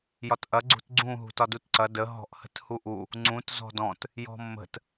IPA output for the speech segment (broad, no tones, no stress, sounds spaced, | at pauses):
j ɒ t ʔ ɐ ɡ͡ǀ ṳ t ɡ͡ǀ ũ ɦ ṳ t ɒ d u t ǀ ɐ d ə ɦ ɔ̤ ʔ h ə̤ t h u ʔ u | ŋ͡ǀ ũ t z ɔ̤ d ɔ̃ t | j ɔ̤ mː ə̤ t